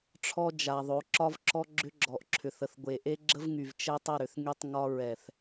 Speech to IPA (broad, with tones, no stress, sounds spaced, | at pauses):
ʈ͡ʂʰ ɔ˦ d͡ʒ a˨ ðˤ o˨˦ ǁ ɒ˦ v ǁ ɔ˦ ɡ͡ǁ ʏ˦ ɡ͡ǁ ɔ˨ ʔ ǁʰ ʏ˨ θ ə˨ θ ɡʷ e˨ ʔ e˦ ɡ͡ǁ ə˦ v ŋ y˨ v t͡ʃ ɛ˦ tˤ ə˦˨ ɾ ʏ˨ θ ŋ y˦ tˤ ŋ ɒ˦ ɹ ɛ˨ θ